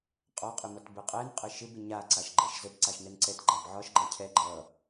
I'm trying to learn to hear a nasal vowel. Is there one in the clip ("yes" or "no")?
no